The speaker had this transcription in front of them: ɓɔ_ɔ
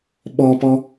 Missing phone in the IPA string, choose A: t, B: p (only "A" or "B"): B